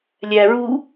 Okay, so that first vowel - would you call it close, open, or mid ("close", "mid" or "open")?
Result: open